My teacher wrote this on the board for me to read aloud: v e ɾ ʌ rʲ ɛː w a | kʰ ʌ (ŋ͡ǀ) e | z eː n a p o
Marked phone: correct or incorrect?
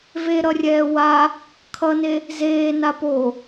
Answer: incorrect